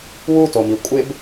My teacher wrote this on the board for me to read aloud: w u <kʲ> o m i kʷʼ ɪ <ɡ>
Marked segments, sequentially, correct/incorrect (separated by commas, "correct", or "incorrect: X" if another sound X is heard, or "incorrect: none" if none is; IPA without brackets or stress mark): incorrect: t, incorrect: b